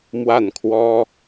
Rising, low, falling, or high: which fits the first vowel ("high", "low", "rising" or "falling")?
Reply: falling